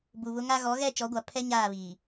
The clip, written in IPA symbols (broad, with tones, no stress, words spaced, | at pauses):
bu˨βʊ˦ŋa˦ ɣɔ˨˦ɣɛ˦˨ t͡ʃɔ˨˦ɡʷa˨ pʰɛ˦ ɲaː˦˨βiː˨